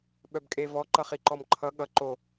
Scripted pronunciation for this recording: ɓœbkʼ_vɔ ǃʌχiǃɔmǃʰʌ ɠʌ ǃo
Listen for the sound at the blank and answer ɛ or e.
e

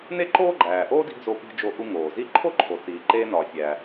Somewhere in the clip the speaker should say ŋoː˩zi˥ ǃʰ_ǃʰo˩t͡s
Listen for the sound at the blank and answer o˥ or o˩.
o˥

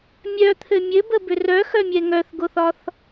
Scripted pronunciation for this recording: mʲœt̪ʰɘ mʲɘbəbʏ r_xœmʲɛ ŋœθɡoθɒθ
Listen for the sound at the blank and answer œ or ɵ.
œ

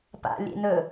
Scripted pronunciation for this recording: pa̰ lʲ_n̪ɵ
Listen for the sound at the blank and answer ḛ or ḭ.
ḛ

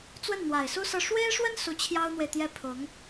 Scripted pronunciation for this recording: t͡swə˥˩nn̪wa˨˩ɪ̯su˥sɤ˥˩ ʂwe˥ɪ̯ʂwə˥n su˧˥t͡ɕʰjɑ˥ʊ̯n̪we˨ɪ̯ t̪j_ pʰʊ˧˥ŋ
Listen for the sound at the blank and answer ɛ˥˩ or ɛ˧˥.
ɛ˥˩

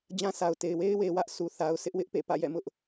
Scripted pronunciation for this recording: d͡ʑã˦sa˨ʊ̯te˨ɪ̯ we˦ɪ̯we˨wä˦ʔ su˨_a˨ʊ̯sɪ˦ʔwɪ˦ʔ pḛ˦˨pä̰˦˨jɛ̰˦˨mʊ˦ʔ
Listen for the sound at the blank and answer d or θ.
θ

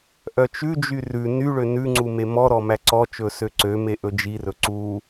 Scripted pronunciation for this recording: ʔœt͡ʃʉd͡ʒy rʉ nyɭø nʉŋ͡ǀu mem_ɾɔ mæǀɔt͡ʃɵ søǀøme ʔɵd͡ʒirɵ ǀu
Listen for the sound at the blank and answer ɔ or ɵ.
ɔ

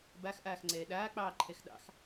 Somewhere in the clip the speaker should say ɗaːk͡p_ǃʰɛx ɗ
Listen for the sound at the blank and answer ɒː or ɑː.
ɑː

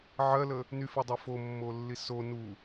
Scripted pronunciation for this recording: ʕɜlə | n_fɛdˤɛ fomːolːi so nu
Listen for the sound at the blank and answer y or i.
y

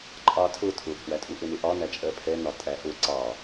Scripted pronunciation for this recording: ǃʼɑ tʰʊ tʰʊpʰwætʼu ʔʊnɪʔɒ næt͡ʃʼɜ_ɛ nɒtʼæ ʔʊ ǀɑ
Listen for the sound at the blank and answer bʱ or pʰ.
pʰ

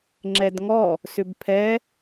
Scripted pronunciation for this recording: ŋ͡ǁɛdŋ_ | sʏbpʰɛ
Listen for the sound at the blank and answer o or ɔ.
ɔ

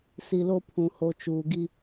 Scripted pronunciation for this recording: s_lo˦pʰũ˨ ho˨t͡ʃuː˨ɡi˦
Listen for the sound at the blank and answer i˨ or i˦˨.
i˨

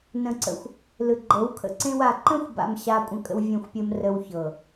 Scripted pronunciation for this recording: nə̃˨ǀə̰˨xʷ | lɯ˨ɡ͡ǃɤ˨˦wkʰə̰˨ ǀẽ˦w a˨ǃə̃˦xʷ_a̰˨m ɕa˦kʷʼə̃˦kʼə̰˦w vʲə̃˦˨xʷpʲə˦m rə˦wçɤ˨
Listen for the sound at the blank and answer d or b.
b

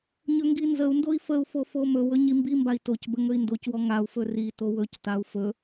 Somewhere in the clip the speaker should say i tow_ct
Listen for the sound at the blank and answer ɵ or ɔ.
ɵ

